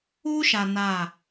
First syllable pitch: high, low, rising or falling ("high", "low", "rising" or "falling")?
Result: high